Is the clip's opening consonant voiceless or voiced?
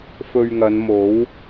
voiceless